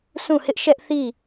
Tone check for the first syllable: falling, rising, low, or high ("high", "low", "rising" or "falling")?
falling